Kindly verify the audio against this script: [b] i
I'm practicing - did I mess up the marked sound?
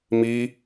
yes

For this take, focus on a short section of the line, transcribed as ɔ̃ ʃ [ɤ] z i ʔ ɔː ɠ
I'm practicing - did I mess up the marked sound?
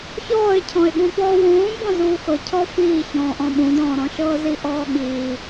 yes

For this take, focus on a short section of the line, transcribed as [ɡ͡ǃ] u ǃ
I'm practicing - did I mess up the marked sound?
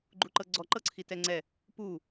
no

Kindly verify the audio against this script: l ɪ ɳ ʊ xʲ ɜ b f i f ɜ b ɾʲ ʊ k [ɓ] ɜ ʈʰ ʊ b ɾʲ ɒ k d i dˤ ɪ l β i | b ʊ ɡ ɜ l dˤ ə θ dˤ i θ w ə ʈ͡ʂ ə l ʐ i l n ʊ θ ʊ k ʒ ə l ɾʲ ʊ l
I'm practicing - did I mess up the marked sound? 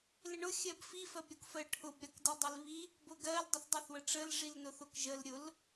yes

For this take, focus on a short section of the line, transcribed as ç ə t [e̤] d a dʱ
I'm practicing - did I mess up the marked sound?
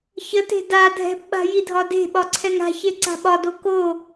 no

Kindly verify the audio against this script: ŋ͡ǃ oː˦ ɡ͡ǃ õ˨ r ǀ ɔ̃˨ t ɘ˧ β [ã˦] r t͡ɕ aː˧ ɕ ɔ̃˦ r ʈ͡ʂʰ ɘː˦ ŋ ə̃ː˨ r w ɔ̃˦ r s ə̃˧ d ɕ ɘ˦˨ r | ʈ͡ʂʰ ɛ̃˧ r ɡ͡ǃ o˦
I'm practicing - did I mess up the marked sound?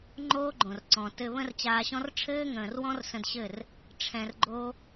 yes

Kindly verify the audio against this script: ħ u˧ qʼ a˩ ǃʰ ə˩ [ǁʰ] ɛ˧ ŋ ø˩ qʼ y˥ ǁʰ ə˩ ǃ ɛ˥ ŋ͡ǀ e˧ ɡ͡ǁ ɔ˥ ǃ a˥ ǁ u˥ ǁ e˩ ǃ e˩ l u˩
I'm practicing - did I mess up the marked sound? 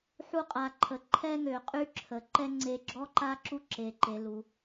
yes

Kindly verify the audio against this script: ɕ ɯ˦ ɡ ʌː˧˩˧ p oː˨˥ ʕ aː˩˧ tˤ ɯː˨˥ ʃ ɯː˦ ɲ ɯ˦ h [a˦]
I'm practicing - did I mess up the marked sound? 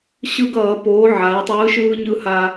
no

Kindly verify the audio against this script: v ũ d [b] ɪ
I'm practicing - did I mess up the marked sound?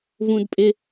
yes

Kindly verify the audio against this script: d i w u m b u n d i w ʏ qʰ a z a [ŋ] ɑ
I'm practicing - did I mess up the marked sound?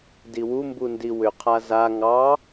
no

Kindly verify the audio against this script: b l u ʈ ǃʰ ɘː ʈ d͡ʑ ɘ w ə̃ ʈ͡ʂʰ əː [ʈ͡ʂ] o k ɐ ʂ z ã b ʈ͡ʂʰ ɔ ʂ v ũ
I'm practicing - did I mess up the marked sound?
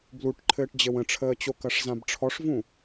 yes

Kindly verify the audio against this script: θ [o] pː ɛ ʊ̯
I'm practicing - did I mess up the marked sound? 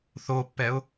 no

